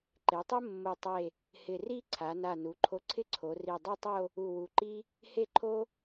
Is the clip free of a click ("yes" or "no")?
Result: no